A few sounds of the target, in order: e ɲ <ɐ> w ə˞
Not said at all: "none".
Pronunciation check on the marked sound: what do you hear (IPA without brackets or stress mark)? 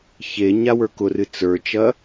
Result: a